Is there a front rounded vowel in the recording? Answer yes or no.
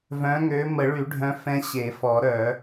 yes